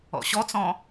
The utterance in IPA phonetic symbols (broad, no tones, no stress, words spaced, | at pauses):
ɔ̰ɕɔt͡sɔ̃